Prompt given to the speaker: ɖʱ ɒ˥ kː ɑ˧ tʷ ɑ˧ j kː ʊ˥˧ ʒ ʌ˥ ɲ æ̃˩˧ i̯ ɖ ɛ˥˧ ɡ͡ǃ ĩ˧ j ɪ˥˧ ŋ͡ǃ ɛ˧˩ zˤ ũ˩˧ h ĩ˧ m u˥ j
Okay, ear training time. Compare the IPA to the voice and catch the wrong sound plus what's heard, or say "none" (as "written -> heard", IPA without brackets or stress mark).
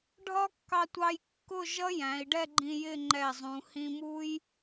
ɲ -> j